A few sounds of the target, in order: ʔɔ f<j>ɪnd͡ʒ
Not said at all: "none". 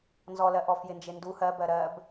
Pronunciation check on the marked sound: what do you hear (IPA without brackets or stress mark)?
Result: j